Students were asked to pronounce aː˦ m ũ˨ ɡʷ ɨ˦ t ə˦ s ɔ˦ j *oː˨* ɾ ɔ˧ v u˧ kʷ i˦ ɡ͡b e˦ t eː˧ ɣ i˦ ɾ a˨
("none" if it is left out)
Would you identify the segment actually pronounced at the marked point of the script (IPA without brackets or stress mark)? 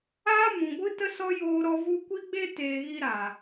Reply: oː˧